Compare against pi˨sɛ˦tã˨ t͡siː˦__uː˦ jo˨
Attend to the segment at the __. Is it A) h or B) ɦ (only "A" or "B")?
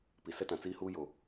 A